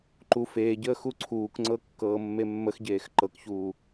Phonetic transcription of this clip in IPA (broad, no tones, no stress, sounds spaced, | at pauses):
ǃ u f eː ɟ əː x u ǀʰ uː k ŋ͡ǀ ɤ kː ɤː mː e mː ə x ɟ eː x ǃ ɤ k ç uː